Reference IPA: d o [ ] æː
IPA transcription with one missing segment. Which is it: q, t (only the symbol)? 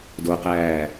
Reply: q